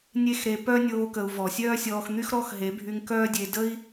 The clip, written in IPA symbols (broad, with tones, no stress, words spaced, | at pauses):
nʲe˦x ɾe˧pœ˦ nʲoː˦kə˧u̯vɔ˨ sʲœː˦sʲɔː˧xn̪y˦x ɾɔ˦xɦe˨˦bʱy˧ŋ kœː˦dʲe˧ də˦i̯